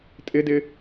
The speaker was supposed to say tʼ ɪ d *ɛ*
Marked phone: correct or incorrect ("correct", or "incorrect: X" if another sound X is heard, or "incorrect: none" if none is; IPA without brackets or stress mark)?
incorrect: ɪ